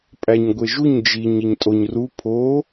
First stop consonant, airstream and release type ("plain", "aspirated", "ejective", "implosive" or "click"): ejective